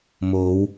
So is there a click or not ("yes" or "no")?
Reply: no